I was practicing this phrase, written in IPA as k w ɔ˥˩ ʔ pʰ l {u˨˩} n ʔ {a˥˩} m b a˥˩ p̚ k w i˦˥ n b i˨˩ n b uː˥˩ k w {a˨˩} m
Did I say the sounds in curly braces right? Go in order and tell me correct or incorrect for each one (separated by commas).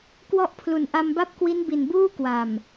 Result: correct, incorrect, correct